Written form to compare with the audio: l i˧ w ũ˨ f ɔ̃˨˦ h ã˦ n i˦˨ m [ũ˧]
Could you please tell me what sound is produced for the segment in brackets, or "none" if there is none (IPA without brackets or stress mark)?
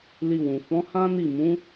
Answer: ũ˨˦